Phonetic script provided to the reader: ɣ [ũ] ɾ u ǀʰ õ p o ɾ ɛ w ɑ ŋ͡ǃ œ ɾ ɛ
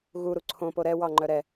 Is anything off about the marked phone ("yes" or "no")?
yes